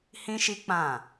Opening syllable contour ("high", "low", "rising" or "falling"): high